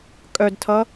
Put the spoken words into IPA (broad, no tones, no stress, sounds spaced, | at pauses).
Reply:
kʼ œ d tʰ ʌ